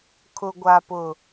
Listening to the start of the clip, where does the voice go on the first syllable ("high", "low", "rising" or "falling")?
low